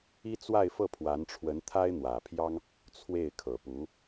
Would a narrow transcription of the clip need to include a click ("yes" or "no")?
no